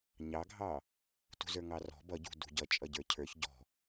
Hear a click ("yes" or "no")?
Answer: no